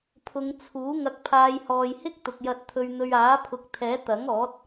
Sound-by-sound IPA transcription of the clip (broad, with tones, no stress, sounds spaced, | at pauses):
pʰ ʊ˨˧ ŋ t͡sʰ uː˨˥ ŋ ɐ˨ k̚ pʰ aː˨˧ j h ɔː˨ j h ɪ˥ k̚ t̪ ʊ˨ k̚ j ɐ˧ t̚ t̪ʰ ɵ˧ ɥ n̪ ɵ˧ ɥ aː˨˥ pʰ ʊ˨ k̚ t̪ʰ ɛː˨˥ t̪ ɐ˨˥ ŋ ɔː˨˥ t̚